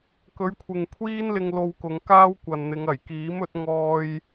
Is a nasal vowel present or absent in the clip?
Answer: absent